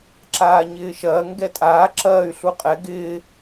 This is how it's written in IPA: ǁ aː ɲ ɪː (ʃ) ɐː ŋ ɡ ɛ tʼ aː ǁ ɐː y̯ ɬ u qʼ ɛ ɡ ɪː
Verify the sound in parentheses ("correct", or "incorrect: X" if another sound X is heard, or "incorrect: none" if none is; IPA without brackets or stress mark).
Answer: correct